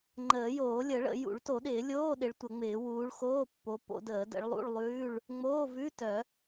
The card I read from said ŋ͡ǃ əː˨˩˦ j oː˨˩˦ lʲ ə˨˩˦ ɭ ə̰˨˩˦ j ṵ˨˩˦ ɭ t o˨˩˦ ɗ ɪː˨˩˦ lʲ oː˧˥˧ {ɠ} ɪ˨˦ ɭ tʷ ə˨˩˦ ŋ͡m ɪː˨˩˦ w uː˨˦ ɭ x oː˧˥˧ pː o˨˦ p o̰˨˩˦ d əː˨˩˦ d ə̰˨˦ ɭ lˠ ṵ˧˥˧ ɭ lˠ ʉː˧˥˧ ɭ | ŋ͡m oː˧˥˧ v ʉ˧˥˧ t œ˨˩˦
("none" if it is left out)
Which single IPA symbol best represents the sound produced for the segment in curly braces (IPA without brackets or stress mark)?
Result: ɗ